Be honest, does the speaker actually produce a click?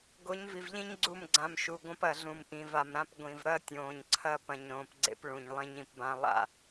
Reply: yes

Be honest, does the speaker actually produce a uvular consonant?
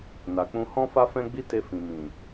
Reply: no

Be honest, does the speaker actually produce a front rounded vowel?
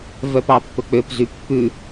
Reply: yes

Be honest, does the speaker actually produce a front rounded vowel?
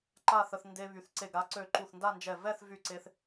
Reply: yes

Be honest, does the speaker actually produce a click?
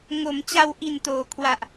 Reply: no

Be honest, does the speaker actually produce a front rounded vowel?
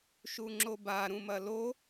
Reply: no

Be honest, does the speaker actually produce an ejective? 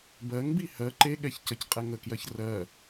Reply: yes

